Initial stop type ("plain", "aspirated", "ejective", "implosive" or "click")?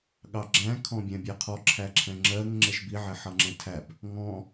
implosive